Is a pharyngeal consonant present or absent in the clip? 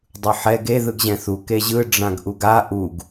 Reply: present